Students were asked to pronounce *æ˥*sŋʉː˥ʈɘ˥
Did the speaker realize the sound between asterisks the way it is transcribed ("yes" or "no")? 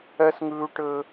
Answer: no